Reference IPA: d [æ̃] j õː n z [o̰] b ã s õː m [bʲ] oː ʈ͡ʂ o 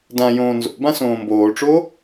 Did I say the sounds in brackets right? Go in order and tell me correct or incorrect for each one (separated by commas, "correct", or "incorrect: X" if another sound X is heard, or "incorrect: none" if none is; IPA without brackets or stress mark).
incorrect: ã, correct, incorrect: b